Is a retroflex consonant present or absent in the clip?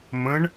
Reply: present